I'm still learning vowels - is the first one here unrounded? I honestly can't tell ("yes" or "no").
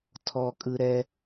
no